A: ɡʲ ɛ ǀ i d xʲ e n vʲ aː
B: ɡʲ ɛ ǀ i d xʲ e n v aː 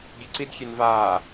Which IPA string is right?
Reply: B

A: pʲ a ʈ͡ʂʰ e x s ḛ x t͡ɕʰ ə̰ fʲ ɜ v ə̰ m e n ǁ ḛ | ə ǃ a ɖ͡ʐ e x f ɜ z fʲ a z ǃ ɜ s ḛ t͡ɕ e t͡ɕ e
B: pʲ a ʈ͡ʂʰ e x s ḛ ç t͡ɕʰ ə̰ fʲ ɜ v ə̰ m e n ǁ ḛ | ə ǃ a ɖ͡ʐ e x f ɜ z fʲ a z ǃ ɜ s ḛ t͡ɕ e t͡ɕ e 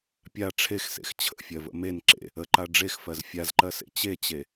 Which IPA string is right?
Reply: A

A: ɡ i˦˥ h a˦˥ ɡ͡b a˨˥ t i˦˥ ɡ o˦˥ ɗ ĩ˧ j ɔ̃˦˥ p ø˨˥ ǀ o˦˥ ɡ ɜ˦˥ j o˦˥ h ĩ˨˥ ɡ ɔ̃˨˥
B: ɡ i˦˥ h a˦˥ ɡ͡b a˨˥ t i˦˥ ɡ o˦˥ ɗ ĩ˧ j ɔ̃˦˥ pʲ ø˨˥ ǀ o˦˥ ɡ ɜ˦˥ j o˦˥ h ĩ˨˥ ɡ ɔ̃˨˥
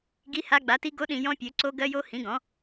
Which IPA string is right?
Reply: B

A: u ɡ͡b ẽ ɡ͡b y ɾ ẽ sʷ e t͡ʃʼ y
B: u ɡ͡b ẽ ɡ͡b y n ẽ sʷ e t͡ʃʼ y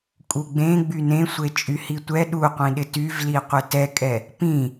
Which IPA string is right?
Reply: B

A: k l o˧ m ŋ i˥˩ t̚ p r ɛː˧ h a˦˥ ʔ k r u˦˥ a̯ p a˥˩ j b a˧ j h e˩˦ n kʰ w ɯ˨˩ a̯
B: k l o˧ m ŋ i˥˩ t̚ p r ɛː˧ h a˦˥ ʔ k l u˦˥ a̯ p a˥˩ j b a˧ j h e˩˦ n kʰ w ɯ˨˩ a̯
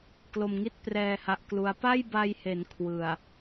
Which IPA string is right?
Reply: B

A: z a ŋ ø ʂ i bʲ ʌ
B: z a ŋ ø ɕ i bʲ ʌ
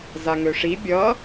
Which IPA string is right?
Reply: A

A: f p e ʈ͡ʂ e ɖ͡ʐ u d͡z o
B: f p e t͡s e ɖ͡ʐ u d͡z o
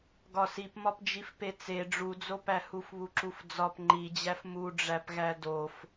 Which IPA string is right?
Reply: B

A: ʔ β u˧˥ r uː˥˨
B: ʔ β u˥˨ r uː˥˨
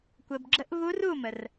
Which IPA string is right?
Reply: A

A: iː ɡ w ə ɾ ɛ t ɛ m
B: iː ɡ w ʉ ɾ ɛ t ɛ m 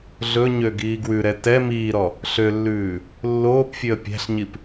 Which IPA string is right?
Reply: B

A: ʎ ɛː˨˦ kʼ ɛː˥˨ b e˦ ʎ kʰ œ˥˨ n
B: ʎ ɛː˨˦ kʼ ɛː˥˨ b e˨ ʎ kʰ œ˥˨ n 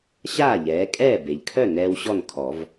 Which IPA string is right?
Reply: B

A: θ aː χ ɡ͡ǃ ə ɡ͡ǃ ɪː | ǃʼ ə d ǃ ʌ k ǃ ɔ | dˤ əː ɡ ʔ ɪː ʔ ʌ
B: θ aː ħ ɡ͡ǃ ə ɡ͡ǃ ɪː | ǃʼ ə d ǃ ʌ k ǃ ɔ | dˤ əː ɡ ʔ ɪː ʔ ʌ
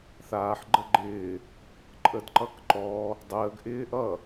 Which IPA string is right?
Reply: B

